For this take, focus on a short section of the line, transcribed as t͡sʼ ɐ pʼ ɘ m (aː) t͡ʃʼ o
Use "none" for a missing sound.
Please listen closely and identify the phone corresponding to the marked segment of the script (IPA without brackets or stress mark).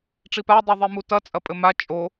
a